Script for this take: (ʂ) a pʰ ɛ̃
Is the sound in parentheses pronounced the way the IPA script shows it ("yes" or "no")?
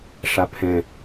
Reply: yes